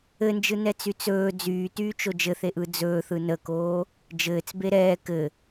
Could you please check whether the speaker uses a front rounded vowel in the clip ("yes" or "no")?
yes